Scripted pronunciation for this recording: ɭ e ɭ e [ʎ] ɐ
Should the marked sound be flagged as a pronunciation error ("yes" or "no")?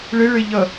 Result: no